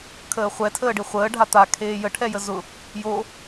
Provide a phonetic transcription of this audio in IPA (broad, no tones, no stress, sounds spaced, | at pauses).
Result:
kʰ əː χʷ ɛ tʰ əː ɖ i χʷ əː ɖʱ a t̪ a kʰ eː j ə ʈʰ ɛ j ə z ʊ | j o